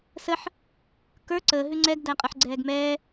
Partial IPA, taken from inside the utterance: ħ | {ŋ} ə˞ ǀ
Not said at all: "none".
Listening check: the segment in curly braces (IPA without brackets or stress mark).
k